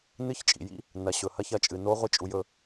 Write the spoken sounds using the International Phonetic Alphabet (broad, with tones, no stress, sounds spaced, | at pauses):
n ɨ˧˥˧ ç t͡ʃʼ ḭ˩ j ḭ˧˥˧ | n ɐ˩˧ ɕ ɵ˩ h ɐ˧˥ ç ɐ˧˥ t͡ʃʼ ɨ˩ n o˧˥ ʁʷ i˧˥˧ t͡ʃʼ u˩˧ j ɵ˩˧